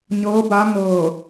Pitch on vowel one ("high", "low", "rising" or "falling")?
rising